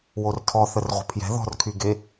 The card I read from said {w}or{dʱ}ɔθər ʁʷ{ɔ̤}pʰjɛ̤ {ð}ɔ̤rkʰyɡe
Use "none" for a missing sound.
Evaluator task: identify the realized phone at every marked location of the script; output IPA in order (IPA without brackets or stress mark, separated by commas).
w, tʰ, ə̤, ð